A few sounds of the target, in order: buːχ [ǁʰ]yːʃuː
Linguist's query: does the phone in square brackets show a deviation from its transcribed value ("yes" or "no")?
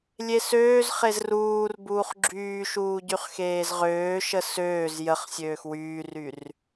yes